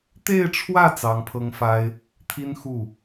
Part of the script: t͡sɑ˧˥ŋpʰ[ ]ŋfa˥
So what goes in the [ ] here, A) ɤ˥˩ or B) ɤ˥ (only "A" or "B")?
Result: B